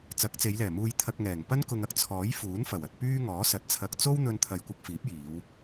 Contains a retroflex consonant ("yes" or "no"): no